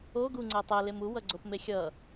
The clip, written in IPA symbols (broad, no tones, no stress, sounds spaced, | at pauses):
o ɡ u ŋ͡ǀ ɛ tˤ ɛ l e m u w ʌ ɡ͡ǀ o p m e xʲ ʌ